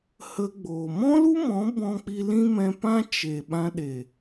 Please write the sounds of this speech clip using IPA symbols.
h ə˧ ɡ͡b oː˨ m ɔ̃˦ l u˦ m ɔ̃˨˦ b ɔ̃˦ k͡p i˦ l ĩ˦ m ɛ̃˧ p ã˦ t͡ʃ e˨ ɓ ã˧ ɗ e˨

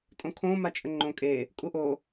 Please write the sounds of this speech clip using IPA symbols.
tʼ õ kʰ õ m a t͡ʃʼ ə ŋ͡ǃ õ kʼ e | kʼ u ʔ o

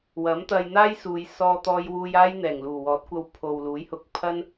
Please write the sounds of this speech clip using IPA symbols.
w ɐ˨˥ m t̪ ɐ˧ j n̪ aː˥ j s uː˨ j s ɔː˧ t̪ ɔː˧ j w uː˧ j aː˥ j n̪ ɛː˨˩ ŋ l uː˨˩ w ɔː˨˥ t̚ kʷ ɐ˧ w pʰ o˨ w l uː˨˥ j h ʊ˨˥ k̚ pʰ ɐ˥ n

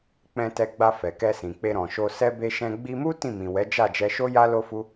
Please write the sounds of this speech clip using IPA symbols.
k͡p ɛ̃˧ t ɛ˧ ɡ͡b a˧ f ɛ˨ k ɛ˧ s ĩ˨ k͡p e˧ ɾ ɔ̃˨ ʃ o˧ s ɛ˧ b e˧ ʃ ɛ̃˧ ɡ͡b i˧ m u˦ t ĩ˦˨ m ĩ˨ w ɛ˨˦ d͡ʒ a˦˨ d͡ʒ ɛ˧ ʃ o˦ j a˦ l o˦ f u˦

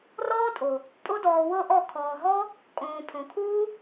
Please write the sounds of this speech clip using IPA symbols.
r ɔː˦ tʼ o˨ | pʼ o˦ d ɔː˧ w ɤ˦ ʔ ɔ˦˨ kʰ ɔː˨ ɦ ɔ˦ | kʼ õː˧ pʰ õ˨ kʰ uː˦

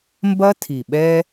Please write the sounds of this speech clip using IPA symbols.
m b ɐ˦ tʰ i˨ ɓ ɛ˧

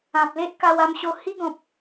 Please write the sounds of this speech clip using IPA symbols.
ã˨ p̚ l e˦ ʔ k a˧ w a˧ m ɕ o˧ h i˦ ɡ ɔ̃˨ p̚

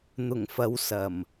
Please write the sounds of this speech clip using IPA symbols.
n̪ ʊ˨˩ ŋ f ɐ˨˧ w s ɐ˨˩ m

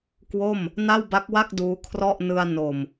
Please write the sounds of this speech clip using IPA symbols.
k w o˥˩ m | n a˥˩ w b a˦˥ k̚ w a˥˩ k̚ d uː˦˥ kʰ r ɔ˥˩ ʔ n ɯ˧ a̯ n o˨˩ m

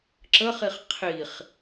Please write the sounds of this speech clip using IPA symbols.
ǁ ə χ i χ qʰ i χ

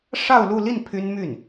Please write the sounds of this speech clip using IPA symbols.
ʂ ɑ˥˧ ʊ̯ l u˥˧ l i˥˩ n pʰ y˥ n m y˥˩ n

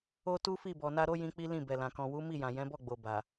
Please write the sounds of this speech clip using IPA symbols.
o˦ t u˦ f i˦˨ b ɔ˨ n a˧ ɾ o˦ j ĩ˧ k͡p i˦ l ĩ˦˨ b ɛ˨ l ã˨ k ɔ̃˨ w u˨˦ m i˦˨ j ã˨ j ɛ̃˨˦ b ɔ˦˨ ɡ͡b o˨ b a˨

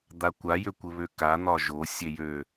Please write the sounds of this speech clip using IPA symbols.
d̪ a kʷ a j ø kʷ ɘ β ø k a n̪ ɒ ʒ o sʲ e j ø

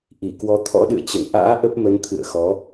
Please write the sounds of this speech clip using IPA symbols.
ʔ i˧˩ k w ɔ˨˦ t̪ʰ ɔ̰˧˥ ɗ ɨ̰˧˨ ə̯ t͡ɕ ə̰˧˨ n ʔ a̰ː˧˥ ʔ ə˦˥ p̚ m ə˨˦ n t̪ʰ ɨ̰˧˨ ə̯ x ɔ˨˦

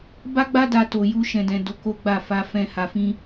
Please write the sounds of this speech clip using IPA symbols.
b a˦ ɡ͡b a˦ d a˧ t o˧ j u˦ ʃ ɛ̃˧ d ɛ̃˧ d o˧ k o˦ ɡ͡b a˦˨ f a˧ f ɛ̃˦ h a˧ f ĩ˦

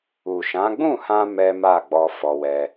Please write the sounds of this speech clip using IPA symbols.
u˨ ʃ ã˨˦ ɡ͡b ũ˦˨ h ã˧ m ɛ˦ m a˦˨ ɡ͡b ɔ˧ f ɔ˧ w ɛ˦

